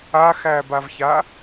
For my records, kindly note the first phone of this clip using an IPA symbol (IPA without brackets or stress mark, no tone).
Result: a